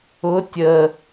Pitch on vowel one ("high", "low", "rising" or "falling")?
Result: rising